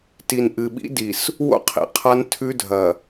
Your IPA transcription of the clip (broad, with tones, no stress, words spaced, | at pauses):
ti˨n ʔɨ˨ɓḭ˦di˨s | wo̰˦qʰḭ˨qʰa˦n tʰʉ˦dʱɐ˨